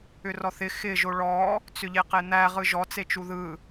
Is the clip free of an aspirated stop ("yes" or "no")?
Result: yes